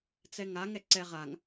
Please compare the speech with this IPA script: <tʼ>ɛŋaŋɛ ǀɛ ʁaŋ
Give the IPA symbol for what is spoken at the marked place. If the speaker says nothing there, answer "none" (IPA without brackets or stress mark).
t͡s